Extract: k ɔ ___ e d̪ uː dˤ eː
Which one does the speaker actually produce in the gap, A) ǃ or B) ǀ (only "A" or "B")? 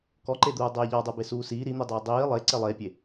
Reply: A